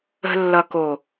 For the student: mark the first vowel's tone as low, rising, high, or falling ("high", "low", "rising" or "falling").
low